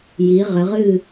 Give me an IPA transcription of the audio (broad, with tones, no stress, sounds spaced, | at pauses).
j i˩˧ ʁ ɘ˩˧ ʁ ɨ˥˨